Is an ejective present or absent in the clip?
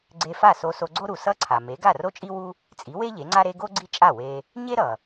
present